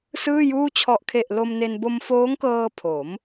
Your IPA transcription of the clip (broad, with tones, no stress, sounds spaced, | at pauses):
s ɯː˥˩ j uː˥˩ t͡ɕʰ ɔ˨˩ ʔ kʰ e˨˩ ʔ l o˧ m n e˧ n b o˧ m f oː˦˥ ŋ k ɤː˧ pʰ o˩˦ m